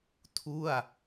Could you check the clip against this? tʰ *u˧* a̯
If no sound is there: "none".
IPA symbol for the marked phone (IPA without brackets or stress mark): u˥˩